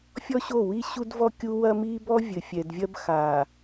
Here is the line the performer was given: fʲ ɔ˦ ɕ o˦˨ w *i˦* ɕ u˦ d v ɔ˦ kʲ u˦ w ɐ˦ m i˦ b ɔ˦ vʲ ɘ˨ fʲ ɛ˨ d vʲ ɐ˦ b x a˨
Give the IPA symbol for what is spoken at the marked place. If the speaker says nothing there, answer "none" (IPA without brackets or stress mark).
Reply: i˦